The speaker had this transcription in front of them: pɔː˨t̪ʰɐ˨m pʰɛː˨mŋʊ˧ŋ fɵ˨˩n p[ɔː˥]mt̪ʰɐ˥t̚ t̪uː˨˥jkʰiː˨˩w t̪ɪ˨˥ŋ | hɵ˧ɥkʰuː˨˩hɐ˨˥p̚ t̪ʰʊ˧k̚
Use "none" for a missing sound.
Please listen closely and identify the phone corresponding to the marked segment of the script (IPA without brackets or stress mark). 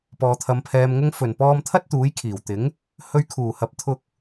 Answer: ɔː˧